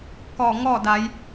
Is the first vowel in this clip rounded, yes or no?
yes